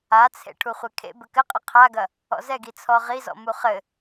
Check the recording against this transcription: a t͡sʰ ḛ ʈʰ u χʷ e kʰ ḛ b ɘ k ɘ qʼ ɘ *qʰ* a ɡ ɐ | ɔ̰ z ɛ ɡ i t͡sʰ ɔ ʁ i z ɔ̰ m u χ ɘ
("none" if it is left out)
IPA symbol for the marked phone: qʰ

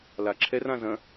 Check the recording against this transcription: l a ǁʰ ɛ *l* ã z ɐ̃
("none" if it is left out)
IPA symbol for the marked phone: r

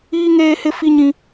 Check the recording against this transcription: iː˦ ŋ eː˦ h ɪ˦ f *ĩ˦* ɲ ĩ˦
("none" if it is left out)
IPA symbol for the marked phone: i˦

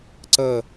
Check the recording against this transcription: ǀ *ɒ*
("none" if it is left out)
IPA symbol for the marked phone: ʌ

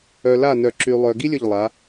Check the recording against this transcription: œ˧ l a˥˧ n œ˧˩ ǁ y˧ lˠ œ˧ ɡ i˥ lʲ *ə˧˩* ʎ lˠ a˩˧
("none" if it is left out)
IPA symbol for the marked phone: ə˧˩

